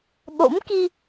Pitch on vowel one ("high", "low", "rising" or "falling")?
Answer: rising